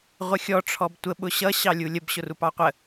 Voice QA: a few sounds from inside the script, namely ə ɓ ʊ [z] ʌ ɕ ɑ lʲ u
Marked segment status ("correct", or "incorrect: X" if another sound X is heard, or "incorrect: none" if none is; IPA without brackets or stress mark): incorrect: ɕ